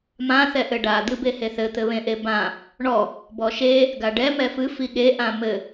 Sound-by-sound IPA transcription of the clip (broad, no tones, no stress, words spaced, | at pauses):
mã θɛʔɘɖa d̪ɨbeheθɘ t̪ɘβẽʔebã | ɳɔ | bɔʃe | ɡaɖɛ mɛfɨ fiɠe ʔãmɘ